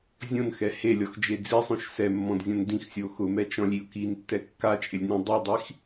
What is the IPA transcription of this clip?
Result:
zʲ õ n x ɛ h e lʲ ɔ x d͡ʒ e d͡z i sˤ õ ʃ s ɛ mː ɔ̃ d zʲ ɔ̃ n d ĩ x sʲ o x ʊ m ɛ t͡ʃ ɔ̃ lʲ i ʊ̯ k i n tː ɛ kː a t͡ʃʼ ɪ lʲ n ĩ dˤ i dˤ i x

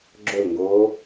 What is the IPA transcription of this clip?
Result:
ɡ͡ǁ ɵ l ŋ ɡ oː

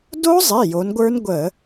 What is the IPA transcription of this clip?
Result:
d o˦˥ zˤ i˩˧˩ j o˩˧ n ɡʷ ə˞˦˥ n ɡʷ ə˧˩˧

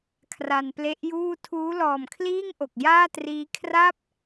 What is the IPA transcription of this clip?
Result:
kʰ r a˧ n p l e˦˥ ʔ j uː˥˩ tʰ uː˦˥ l ɔː˨˩ m kʰ l iː˥˩ ŋ ʔ o˨˩ k̚ j aː˥˩ t r iː˦˥ kʰ r a˥˩ p̚

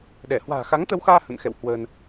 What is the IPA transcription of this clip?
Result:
ɗ ɛ˧˩ h w a̤ː˨˩ x a˨˦ ŋ t̪ ə˧ w x aː˧ h ə̰˧˨ n x ɛ̰˧˨ w h w ə˧ n

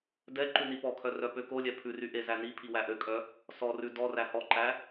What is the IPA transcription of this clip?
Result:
d ɛ ǃ ʉ n i p ɔ kʰ œ r œ p ø k o lʲ ɛ pʰ ʉ r y ʔ e z æ n i pʰ i w æ ʔ ø kʼ œ | s ɔ r ʉ d ɔ r æ h ɔ ǃ æ

